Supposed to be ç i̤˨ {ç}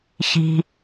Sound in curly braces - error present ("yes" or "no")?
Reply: yes